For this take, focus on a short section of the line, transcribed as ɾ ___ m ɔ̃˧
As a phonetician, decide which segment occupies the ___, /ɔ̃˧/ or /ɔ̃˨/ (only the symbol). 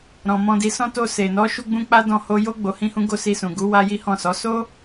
ɔ̃˨